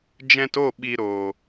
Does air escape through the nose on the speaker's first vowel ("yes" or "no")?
yes